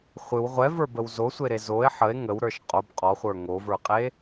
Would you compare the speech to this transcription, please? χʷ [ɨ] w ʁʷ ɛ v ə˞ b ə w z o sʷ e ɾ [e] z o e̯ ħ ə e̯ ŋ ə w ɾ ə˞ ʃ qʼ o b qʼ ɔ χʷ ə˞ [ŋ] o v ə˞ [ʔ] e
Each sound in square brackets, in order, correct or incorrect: correct, correct, correct, incorrect

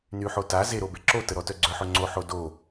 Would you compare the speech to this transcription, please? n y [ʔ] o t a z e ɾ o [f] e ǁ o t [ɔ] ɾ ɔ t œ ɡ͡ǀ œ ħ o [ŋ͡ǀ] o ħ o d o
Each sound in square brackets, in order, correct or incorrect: incorrect, incorrect, incorrect, correct

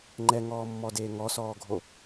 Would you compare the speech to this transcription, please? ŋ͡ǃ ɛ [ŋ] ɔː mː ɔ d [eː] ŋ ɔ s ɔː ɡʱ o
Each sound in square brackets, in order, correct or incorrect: correct, correct

